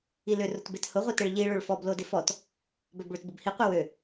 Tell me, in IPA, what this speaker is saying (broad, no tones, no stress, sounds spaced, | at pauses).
i l ʏ r ʊ t b e t h ʊ ʁʷ i t e ɭ ʎ i ɭ ø ɭ f ɔ b l o d ɪ f ɔ t | b œ b ɭ ʏ t b ʊ b h i qʷ i w ø